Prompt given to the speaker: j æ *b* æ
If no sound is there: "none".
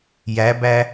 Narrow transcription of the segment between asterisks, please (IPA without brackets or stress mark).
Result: b